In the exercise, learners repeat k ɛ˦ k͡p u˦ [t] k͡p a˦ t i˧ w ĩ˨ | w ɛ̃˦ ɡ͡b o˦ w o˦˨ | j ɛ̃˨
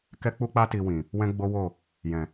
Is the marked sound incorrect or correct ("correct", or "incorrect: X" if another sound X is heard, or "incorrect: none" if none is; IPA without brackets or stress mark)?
incorrect: none